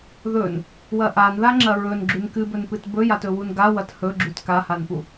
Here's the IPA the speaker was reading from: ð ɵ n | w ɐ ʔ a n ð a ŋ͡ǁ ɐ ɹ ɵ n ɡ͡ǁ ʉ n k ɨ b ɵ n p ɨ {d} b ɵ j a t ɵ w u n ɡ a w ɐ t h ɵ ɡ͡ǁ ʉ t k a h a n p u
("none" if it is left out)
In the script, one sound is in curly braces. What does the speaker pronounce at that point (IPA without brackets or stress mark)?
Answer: t